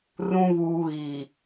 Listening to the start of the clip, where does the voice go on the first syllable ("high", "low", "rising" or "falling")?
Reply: low